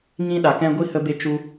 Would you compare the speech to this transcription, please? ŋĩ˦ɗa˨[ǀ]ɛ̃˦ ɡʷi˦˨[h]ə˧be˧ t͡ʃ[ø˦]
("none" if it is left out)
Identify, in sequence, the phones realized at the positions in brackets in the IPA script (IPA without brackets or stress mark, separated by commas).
k, h, u˦